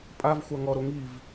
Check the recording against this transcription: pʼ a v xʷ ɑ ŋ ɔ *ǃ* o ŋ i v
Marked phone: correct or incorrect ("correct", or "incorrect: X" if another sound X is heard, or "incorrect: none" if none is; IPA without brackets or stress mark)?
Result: incorrect: ɾ